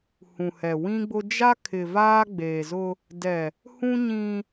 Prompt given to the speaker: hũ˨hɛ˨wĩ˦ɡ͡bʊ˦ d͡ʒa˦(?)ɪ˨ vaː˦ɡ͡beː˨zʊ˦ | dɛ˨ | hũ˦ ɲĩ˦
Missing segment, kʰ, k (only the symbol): kʰ